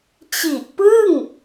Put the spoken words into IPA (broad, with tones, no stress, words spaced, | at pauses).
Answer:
t͡ɕi˨˩ʔpɯ˥˩ŋ